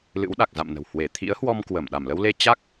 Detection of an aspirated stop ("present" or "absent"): present